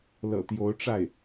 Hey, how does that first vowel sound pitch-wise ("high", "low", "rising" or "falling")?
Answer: low